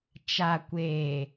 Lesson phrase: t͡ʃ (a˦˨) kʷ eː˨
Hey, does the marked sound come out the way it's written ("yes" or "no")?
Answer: no